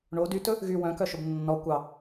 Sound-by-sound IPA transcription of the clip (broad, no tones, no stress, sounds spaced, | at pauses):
ɳ o d y t ɵ | ɣ y w œ̃ k œ ʃ o b nː ɔ kʷ ɑ